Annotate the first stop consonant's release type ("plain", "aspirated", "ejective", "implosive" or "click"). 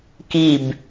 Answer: plain